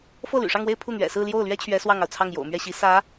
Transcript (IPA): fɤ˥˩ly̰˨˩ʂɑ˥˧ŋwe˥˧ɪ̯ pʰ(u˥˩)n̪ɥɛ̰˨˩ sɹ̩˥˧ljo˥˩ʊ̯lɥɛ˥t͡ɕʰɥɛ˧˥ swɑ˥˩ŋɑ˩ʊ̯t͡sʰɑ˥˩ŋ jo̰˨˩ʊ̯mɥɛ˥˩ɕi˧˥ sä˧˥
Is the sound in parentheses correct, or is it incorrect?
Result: correct